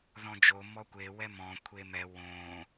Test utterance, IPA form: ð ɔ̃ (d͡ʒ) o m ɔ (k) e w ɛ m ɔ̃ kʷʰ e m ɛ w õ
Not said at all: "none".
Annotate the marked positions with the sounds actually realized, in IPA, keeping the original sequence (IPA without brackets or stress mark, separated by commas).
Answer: d͡ʒ, kʷ